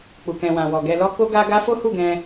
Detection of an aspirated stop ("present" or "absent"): absent